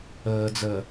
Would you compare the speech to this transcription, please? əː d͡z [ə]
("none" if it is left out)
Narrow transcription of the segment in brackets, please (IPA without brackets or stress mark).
ə